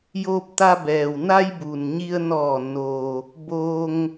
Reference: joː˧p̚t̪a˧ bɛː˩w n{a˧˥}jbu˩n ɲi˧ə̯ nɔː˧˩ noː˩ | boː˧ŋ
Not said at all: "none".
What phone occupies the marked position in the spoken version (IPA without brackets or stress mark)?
a˧